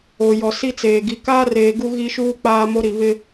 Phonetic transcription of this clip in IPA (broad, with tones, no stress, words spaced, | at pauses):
o˨jɔ˨si˦t͡seː˨ ɡi˨kaː˦reː˨ ɡu˦ɣi˦ʃuː˦ k͡paː˦ mo˦ ɾi˨βɪ˦